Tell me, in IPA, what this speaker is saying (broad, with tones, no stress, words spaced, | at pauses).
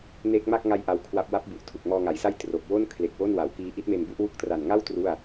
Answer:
neː˦˥k̚ma˥˩k̚ ŋa˦˥j ʔa˦˥wkʰwa˦˥p̚ wa˦˥p̚bu˨˩ʔ tʰu˨˩k̚mɔː˧ŋa˩˦jsa˥˩j tro˨˩k̚ wo˥˩n kʰle˨˩k̚wo˥˩nwa˩˦wkiː˦˥ ʔi˦˥t̚me˧nbu˥˩ʔwu˥˩k̚ tra˨˩nŋa˥˩w tru˥˩a̯